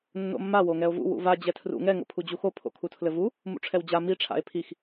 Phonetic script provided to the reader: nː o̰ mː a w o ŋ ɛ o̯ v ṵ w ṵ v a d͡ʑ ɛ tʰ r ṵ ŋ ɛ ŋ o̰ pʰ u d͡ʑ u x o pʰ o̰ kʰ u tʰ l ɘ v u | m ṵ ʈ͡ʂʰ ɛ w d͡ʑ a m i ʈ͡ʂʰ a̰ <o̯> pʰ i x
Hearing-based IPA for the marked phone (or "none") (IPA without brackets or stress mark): e̯